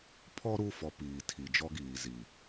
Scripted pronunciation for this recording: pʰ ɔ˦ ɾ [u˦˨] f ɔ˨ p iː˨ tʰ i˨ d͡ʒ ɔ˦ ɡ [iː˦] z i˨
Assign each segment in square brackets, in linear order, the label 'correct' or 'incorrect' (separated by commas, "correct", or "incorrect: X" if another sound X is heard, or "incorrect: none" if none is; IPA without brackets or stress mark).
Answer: correct, incorrect: iː˨